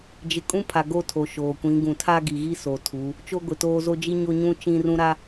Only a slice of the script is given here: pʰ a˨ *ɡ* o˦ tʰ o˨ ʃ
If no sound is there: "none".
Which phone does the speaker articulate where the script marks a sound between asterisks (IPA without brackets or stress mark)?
ɡ